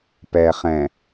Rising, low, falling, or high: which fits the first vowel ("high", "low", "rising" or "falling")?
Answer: low